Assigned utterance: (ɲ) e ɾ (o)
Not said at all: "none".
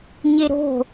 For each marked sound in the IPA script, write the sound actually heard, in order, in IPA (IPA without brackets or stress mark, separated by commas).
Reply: ɲ, o̤